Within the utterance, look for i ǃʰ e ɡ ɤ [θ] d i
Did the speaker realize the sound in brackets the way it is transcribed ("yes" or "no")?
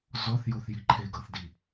yes